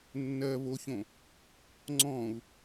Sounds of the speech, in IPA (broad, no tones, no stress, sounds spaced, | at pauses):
nː ɜ β o ç õ | ŋ͡ǀ ɔ̃ u̯